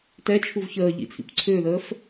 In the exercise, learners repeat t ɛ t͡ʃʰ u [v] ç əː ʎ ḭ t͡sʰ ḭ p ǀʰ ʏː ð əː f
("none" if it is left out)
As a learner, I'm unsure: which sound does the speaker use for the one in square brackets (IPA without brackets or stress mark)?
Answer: v